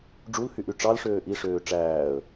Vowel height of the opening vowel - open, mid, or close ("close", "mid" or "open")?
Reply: close